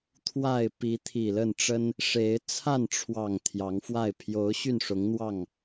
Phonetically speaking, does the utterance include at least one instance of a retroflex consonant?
yes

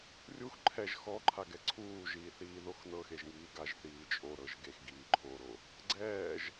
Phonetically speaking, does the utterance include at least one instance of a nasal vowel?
no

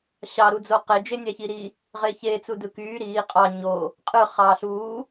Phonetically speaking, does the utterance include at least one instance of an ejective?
yes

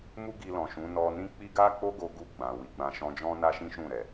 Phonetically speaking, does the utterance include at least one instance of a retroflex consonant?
no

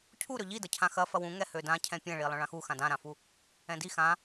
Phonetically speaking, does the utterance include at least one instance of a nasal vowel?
yes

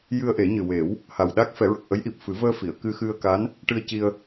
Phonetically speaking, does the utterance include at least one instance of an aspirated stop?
no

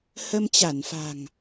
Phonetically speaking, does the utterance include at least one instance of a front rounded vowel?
no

